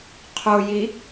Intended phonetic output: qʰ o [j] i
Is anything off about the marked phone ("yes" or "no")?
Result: no